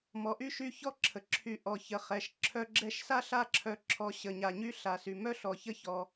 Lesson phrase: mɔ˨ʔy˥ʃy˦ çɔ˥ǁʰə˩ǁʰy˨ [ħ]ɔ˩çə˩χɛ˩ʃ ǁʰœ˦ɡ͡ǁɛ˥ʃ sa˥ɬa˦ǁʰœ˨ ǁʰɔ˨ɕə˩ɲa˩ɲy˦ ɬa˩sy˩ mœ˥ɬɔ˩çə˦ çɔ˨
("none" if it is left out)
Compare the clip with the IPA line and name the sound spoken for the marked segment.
ʔ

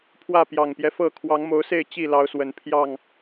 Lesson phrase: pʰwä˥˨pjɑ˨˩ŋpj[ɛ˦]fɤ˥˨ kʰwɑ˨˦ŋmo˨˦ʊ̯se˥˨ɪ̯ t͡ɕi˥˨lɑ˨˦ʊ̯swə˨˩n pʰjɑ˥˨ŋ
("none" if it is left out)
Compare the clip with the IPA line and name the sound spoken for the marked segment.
ɛ˦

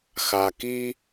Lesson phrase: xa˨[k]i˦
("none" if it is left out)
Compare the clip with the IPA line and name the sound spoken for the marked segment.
k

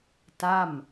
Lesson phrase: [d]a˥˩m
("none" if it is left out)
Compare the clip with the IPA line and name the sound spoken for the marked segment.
t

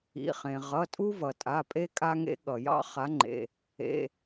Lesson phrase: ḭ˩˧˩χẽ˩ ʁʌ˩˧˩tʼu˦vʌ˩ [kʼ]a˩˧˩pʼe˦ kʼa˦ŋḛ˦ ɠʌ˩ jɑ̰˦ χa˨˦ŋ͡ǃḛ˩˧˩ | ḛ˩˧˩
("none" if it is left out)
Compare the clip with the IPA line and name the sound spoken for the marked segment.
tʼ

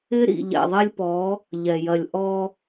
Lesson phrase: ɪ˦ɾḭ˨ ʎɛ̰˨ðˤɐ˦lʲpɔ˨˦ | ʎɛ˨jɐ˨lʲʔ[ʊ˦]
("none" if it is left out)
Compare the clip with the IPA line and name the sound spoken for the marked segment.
ɔ˦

